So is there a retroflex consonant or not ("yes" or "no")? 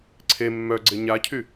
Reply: no